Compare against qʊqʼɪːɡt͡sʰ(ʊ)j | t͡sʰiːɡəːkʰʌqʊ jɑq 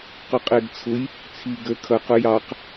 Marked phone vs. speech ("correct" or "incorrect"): correct